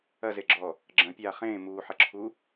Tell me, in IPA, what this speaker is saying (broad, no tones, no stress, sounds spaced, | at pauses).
ɐ z e ɡ͡ǁ ɔː | ɡ͡ǁ ɐ̃ pʲ aː χ ẽː m uː ħ ɐ ǁʰ uː